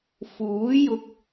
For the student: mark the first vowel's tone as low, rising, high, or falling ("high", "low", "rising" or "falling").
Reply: rising